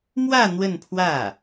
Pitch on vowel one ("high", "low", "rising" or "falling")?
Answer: falling